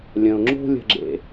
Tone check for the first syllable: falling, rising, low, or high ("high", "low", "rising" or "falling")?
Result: low